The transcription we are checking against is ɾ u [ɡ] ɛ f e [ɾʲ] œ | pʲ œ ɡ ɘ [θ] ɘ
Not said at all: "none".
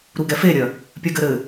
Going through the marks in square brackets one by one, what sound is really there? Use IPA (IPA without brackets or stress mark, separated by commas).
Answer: ɡ, ɾʲ, ɾ